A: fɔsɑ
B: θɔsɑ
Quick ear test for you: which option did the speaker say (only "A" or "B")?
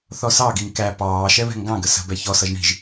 B